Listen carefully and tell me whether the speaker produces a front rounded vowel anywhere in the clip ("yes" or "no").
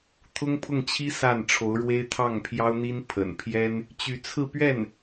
yes